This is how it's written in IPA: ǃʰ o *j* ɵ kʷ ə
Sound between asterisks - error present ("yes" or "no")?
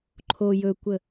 no